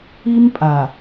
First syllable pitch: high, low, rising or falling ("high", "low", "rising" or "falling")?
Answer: high